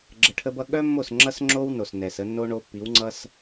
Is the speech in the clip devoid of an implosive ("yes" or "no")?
no